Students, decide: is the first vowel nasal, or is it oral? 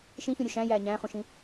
nasal